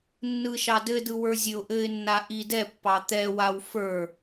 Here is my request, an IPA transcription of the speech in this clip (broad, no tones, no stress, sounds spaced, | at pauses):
nː ɯ ʃ ɑ d ɘ d ɯ w ə˞ zʲ ɘ ʊ̯ ʔ ɘ ɪ̯ nː a ʔ i d ɛ pː ɑ t̪ ɛ w a w f ə˞